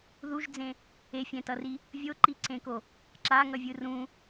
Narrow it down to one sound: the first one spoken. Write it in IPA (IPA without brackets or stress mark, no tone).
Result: ð